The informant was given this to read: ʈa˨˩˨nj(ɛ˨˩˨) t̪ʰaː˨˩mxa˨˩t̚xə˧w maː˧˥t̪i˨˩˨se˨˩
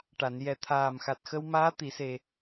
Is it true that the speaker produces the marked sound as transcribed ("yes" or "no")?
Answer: no